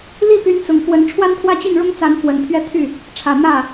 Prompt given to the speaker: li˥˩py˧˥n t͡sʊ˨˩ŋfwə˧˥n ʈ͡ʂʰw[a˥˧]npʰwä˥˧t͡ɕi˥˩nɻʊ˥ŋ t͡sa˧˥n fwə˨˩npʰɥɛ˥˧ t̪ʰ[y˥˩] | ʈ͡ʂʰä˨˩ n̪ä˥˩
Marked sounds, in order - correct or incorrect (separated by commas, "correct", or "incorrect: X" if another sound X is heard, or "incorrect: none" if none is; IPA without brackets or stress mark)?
incorrect: a˥, correct